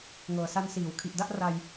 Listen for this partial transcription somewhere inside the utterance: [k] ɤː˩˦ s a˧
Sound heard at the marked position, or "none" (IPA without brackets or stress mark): ŋ